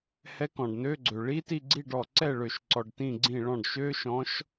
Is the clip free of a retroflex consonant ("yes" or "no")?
no